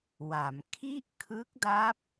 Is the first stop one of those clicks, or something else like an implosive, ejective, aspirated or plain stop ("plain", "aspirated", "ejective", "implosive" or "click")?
aspirated